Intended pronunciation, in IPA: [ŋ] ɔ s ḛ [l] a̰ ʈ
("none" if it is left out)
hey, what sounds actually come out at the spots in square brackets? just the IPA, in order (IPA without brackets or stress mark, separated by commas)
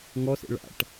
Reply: ŋ, ɭ